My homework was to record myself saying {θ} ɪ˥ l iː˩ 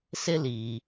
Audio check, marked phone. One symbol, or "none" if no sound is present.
s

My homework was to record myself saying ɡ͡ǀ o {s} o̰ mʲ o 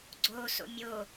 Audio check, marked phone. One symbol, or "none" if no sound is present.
s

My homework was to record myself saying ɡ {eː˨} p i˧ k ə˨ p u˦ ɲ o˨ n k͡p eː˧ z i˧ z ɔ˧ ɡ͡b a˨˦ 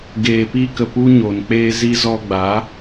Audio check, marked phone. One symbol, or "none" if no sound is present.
eː˨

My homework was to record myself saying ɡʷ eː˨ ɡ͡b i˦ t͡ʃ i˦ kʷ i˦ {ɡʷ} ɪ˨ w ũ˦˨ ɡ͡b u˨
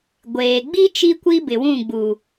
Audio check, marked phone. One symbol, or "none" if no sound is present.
b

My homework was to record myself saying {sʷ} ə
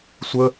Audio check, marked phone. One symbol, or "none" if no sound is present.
sʷ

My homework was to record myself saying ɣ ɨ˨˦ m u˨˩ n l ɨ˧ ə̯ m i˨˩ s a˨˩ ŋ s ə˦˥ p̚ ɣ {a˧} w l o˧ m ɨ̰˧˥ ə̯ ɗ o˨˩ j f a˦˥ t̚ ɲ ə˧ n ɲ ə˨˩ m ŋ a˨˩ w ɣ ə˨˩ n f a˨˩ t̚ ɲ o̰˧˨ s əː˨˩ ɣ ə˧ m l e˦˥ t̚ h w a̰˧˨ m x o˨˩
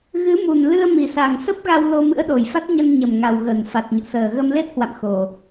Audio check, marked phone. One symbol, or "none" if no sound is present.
a˧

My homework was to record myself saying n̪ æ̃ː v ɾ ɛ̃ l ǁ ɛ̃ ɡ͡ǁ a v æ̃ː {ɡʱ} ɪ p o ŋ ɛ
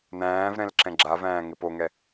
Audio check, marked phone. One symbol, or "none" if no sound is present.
ŋ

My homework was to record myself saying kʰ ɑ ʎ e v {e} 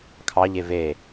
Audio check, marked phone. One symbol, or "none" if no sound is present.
e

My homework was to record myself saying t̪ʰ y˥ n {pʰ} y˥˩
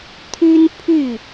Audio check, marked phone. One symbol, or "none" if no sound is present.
pʰ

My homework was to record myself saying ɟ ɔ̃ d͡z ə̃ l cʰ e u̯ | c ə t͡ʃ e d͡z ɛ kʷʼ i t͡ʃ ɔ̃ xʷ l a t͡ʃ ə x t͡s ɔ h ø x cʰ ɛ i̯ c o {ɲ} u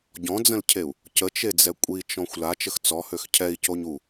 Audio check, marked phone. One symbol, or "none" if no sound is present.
ɲ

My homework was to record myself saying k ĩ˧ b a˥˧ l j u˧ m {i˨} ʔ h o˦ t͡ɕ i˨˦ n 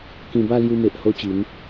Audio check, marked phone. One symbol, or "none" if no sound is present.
e˨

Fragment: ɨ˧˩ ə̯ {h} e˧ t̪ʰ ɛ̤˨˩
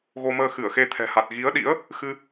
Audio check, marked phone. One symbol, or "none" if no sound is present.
x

